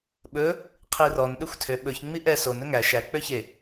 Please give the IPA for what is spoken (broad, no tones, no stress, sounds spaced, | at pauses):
ɓ ɵ | qʰ i r ɔ n ɗ ø xʷ tʰ ø ɓ ɵ ç ŋ͡m i ʔ ɛ s o n ɵ ŋ æ ʃ æ k͡p ø ç e